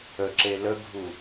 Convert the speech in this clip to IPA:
əǁe ləɡʱu

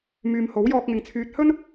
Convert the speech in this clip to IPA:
myː˨mho˨˥wjɔː˧k̚ŋɪ˨ŋ t͡sʰyː˨t̚hɵ˥n

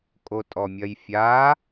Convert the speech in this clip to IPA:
kʼotʼɔmʲɐjfʲaː

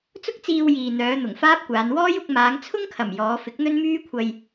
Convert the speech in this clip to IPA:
t͡sʊ˥k̚t͡siː˧wjiː˨ n̪œː˨˧n̪ʊ˨˩ŋfaː˥p̚kʷaː˨˧n wɔː˥jʊ˧k̚ maː˨˧ŋt͡sʰʊ˥ŋkʰɐ˨˩m jɔː˨˧fɪ˨˥k̚n̪ɵ˥n myː˥kʷʰɐ˧j

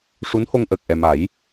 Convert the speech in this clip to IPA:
ʂu˧˥nho˧ŋ ʔəː˨˩k̚ ʔɛ˨˩ma˨˩˦j

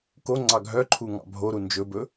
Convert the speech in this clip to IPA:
ko ŋ͡ǀɑɡʱœǃʰu ŋɑ̰bʱoɾu nd͡ʒɵbɵ

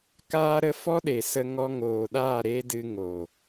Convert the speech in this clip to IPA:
kaː˦ɾə˦ fɔ˦ɗe˨sə˧ ŋɔ˧ŋoː˨ɗaː˦˨ ɾe˦dɨ˧ŋo˨

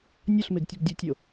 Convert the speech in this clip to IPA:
nʲɔɬmeɡtʲəɡ dʲɵtʲo

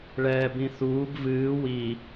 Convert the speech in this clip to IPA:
ɭɛːbĩθuːb vɨː wi

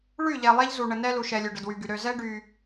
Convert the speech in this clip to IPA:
ɭy˦˨ʎɛ˨ lˠe˦ʎzu˨ɳə˨ nɛ˦lu˨ʃɛ˨ lʲø˨ɖə˨dwy˨ɡy˨ ɾø˨zɛ˦ ɖy˦

